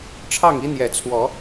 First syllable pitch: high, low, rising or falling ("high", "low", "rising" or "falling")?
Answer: falling